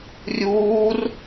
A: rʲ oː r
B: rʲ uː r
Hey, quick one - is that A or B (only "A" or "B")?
B